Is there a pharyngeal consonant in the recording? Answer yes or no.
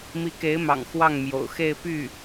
no